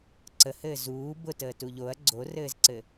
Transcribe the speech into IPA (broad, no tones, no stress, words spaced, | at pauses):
ǀəhɘː zuː bʊtəːtu ʎoɐ̯ ɡ͡ǀorɘːzǀɘ